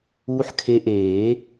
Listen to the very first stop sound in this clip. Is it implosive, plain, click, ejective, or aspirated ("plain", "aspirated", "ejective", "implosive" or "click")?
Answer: aspirated